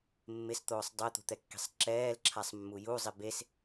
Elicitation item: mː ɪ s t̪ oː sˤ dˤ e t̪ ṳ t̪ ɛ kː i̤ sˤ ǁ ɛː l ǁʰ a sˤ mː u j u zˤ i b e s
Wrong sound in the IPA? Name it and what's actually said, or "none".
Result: none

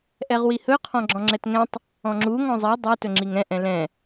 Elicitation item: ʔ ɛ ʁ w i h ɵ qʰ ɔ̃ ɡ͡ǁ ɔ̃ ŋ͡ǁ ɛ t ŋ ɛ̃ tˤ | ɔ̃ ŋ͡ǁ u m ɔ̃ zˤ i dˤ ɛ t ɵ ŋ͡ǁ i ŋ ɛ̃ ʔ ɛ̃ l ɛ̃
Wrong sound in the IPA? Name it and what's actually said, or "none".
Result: m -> ŋ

